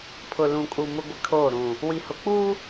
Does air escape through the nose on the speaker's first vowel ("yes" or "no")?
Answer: no